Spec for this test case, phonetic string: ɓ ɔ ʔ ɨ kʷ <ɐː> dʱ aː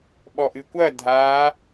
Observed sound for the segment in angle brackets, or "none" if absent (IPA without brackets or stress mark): ɐ